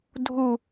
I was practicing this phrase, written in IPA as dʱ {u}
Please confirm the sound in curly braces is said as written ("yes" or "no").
yes